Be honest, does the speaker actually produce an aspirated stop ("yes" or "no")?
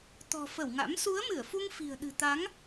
no